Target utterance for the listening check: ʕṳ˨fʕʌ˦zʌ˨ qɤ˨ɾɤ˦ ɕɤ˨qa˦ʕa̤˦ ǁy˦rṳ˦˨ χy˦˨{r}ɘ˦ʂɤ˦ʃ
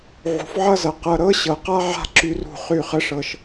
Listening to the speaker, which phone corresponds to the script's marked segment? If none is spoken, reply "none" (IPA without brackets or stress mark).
χ